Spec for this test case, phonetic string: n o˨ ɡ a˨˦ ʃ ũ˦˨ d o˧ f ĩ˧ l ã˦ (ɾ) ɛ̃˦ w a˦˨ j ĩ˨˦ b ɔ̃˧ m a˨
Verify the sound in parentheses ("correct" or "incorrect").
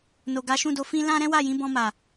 correct